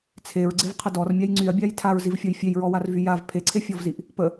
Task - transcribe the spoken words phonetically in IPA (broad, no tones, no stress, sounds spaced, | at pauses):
t͡sʰ e ɹ ɡ͡ǀ e v qʰ ə d ɔ r mʲ a j ŋ͡ǀ y ɐ̯ bʲ a j tʰ a ɹ z i v fʲ ɔ j fʲ e j ɹ ɔ w a r v y j a v pʰ e ǀʰ e fʲ ɔ v z i ʔ | p ə